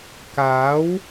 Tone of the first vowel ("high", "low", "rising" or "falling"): rising